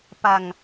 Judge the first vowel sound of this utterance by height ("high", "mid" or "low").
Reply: low